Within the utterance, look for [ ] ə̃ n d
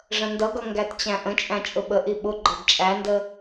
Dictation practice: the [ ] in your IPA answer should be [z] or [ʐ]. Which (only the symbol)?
ʐ